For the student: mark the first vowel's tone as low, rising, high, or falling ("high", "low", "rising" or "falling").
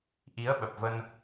rising